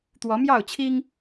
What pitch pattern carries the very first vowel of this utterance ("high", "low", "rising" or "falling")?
rising